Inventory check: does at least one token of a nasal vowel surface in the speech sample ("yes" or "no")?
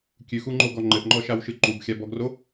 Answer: no